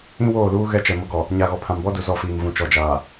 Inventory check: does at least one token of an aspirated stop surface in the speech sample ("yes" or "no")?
yes